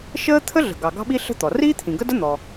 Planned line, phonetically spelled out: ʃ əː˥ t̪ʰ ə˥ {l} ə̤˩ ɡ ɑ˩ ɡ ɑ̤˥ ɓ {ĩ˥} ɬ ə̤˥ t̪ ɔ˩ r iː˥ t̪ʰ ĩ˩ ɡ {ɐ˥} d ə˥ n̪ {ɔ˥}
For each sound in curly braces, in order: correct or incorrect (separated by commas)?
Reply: incorrect, incorrect, incorrect, incorrect